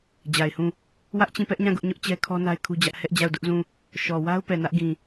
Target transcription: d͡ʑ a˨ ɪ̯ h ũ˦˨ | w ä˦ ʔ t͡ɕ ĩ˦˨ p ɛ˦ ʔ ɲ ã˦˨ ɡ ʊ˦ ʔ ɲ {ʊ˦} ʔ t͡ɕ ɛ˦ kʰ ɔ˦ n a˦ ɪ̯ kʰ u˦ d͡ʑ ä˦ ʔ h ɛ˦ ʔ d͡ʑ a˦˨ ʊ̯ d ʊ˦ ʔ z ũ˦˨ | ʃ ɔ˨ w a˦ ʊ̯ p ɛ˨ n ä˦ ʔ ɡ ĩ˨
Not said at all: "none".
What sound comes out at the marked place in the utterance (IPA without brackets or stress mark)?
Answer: ʊ˦